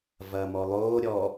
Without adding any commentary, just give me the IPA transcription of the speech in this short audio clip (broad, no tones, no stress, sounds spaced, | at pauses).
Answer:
v ɐː m ɔ lˠ oː ɾʲ ɔ